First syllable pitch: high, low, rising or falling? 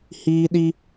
high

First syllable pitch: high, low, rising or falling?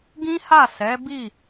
high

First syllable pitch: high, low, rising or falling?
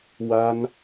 high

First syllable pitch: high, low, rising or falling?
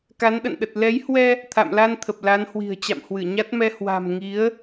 rising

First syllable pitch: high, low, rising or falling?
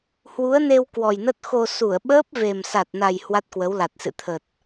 rising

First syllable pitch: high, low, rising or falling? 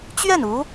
falling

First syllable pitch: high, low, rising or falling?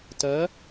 rising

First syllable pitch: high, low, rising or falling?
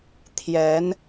rising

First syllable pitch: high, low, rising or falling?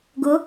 rising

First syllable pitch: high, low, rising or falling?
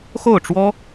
falling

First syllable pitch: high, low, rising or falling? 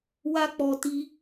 high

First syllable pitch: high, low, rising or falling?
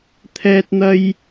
high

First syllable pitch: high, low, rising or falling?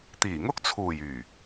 low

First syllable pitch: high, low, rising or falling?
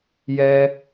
high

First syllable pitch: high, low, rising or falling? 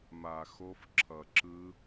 low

